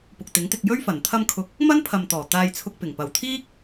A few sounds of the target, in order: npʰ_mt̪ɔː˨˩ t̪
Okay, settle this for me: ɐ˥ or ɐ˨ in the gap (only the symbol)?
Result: ɐ˨